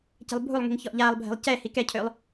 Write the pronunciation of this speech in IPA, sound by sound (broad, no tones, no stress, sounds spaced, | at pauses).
c ɛ̤ lˠ bʱ u lˠ ŋ i̤ ŋ ç ɔ ʔ ʎ aː lˠ bʱ ɛ̤ lˠ c ɛ h i k ɛ cʰ ʏː lˠ